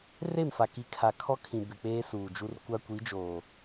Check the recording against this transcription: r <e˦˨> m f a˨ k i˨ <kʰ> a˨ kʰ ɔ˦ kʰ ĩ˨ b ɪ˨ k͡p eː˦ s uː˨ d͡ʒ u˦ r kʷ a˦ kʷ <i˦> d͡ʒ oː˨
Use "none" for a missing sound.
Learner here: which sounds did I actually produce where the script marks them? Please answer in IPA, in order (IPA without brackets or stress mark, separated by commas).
e˦˨, kʰ, i˨˦